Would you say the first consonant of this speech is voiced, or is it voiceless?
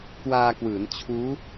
voiceless